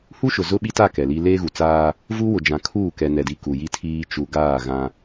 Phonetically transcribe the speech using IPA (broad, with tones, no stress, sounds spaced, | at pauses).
h u˦ ʃ ʊ˨ z ʊ˦ ɓ i˦ t a˦˨ k ɛ˨ l i˦ l eː˦ ɣ u˨ t͡s aː˦ | v u˦ w ʊ˨ d͡ʒ ã˨ kʰ uː˦˨ k ɛ˨ n ɛ˨ d i˨ k u˨ j i˦ tʰ iː˦ t͡ʃ u˨ ɡ aː˦˨ ɣ ã˦